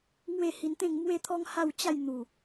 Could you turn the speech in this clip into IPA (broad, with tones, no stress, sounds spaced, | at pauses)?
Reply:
ŋ w e˥˧ h i˧ n t̪ ẽ˥˧ ŋ m w e˦ t̪ʰ ɔ˦ ŋ h a˥˧ w t͡ɕ a˥˧ j n̪ u˨˩